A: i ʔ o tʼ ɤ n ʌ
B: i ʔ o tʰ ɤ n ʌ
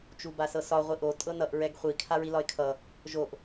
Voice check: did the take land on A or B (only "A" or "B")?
A